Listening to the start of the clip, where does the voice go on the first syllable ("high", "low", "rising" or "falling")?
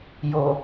low